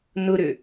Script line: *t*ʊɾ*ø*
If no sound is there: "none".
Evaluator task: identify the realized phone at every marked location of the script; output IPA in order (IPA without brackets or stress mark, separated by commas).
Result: n, ø